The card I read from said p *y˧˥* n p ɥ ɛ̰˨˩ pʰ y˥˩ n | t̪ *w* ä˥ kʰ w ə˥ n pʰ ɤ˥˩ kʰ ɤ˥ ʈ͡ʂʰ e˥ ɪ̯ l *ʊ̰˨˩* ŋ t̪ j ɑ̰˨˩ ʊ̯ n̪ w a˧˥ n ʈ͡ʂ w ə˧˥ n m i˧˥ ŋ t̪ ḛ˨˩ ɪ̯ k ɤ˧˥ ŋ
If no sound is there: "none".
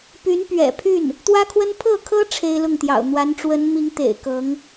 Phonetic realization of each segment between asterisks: y˧˥, w, ʊ˥˩

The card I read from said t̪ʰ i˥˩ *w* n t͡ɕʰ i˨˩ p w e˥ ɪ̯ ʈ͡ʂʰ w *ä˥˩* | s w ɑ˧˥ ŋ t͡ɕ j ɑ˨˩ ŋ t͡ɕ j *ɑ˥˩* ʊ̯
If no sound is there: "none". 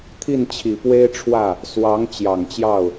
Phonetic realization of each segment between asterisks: none, ä˥˩, ɑ˥˩

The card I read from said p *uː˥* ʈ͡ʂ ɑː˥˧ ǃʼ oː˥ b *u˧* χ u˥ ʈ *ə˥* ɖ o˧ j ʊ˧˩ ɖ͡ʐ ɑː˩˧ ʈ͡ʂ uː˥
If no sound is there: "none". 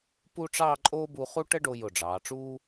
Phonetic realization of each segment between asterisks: u˥, u˧, ə˥

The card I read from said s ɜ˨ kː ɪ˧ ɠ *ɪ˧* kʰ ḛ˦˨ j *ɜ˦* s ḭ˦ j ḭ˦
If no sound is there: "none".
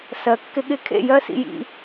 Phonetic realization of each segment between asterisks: ɪ˧, ɜ˦

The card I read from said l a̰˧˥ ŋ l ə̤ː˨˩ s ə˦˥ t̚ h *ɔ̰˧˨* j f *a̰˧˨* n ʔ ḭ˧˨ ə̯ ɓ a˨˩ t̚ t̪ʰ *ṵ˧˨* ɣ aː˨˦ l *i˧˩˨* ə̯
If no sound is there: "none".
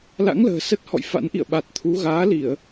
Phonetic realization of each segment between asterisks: ɔ̰˧˨, a̰˧˥, u˨˦, i˧˩˨

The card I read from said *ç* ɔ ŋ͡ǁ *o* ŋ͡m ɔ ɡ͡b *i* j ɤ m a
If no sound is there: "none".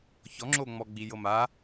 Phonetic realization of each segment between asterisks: ç, o, i

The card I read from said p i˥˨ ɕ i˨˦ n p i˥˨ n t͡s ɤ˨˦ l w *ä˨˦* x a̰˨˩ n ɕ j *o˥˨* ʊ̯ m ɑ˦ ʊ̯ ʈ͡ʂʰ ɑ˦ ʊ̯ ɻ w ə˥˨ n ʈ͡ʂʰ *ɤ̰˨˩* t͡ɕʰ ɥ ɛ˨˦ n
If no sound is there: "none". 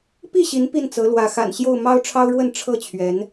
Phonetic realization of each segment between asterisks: ä˨˦, o˥˨, ɤ˥˨

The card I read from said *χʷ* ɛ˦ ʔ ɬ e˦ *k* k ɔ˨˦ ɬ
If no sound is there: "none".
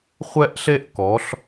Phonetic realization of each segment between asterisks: χʷ, ʔ

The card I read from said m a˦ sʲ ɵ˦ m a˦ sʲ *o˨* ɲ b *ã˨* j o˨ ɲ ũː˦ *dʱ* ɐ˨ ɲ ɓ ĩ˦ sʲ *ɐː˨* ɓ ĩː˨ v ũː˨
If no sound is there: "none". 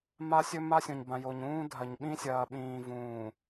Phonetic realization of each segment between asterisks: õ˨, ã˨, dʱ, ɐː˨

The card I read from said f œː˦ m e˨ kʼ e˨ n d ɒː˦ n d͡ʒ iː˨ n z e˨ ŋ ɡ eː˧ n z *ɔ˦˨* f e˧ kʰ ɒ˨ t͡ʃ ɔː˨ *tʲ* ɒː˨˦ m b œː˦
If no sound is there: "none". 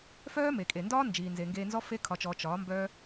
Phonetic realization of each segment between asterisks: ɔ˦, t͡ʃ

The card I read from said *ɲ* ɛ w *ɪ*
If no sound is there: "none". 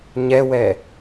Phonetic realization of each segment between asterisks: ɲ, ɛ

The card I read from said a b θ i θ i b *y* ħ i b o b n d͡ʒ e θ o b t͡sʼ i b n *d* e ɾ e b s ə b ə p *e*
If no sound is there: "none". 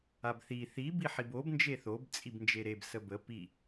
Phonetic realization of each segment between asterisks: i, d͡ʒ, i

